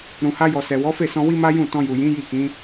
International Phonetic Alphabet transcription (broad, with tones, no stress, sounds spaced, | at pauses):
ɾ ũ˨ h a˧ j ɔ˨ s ɛ˨ w ɔ˨˦ f e˦˨ s ɔ̃˧ w i˦ m a˦ j ũ˦˨ t ɔ̃˧ j u˨ j ĩ˨˦ j i˦˨ k ĩ˨˦